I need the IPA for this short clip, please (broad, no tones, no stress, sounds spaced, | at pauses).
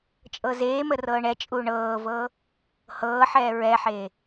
t͡ʃʼ ɤ z eː m ə r ɤː ɳ ɛ t͡ʃʼ uː ɳ ɤː v ɤː | h ɤː ħ ɛː ɹ ɛ ħ eː